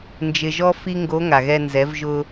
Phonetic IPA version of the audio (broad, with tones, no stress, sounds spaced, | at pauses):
n d͡ʒ ɪ˧ ʒ ɔ˥ f i˥ ŋ ɡ o˧˥ ŋ a˩ ɣ ɛ˧ n z ɛ˩˧ v ʒ ʊ˧